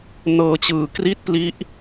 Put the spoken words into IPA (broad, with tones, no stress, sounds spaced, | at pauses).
n ɤː˦˥ t͡ɕ ɯː˨˩ k r i˥˩ t̚ p l i˦˥ ʔ